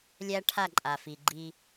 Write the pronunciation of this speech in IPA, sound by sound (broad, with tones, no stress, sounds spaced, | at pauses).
lʲ æ˦ ʈʰ a˦˨ ǃʼ a˨ f i˨ ɡ͡ǃ i˦